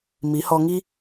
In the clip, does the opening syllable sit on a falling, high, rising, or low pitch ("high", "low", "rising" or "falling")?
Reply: rising